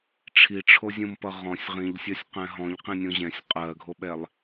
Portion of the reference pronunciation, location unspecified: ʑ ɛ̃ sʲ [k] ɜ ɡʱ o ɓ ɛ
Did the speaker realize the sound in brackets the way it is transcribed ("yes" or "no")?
no